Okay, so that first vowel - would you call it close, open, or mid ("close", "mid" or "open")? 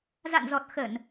open